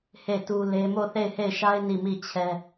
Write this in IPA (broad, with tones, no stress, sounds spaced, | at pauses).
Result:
h e˦˨ t u˦ l e˦ m o˦˨ θ e˦˨ ɪ̯ h e˦˨ ɪ̯ ʃ a˦ ɪ̯ n i˦˨ m i˦˨ t͡ɕʰ ɛ˦